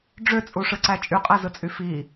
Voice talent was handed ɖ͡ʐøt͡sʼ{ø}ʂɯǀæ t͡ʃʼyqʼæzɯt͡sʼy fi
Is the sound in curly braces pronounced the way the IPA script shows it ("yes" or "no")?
no